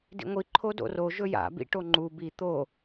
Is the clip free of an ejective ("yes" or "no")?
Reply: yes